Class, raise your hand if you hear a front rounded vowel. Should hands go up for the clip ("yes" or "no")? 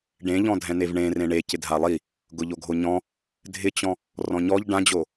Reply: no